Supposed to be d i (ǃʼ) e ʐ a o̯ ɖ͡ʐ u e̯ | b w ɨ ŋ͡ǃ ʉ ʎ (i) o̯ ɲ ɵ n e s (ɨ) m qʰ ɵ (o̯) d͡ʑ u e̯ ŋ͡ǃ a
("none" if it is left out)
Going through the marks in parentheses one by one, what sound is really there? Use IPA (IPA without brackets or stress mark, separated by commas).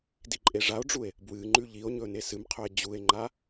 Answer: ǃʼ, i, ɨ, e̯